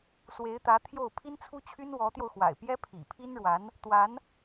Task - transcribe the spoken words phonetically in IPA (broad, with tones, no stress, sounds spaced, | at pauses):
s w e˧˥ ɪ̯ t̪ ä˧˥ t̪ʰ j o˥˩ ʊ̯ pʰ i˥ n t͡sʰ u˥ t͡ɕʰ y˥ n w ɔ˧˥ t̪ j o˧ ʊ̯ x w a̰˨˩ ɪ̯ p j ɛ˥ pʰ ḭ˨˩ pʰ i˥ n ɻ w a˧˥ n | t̪ w a˧˥ n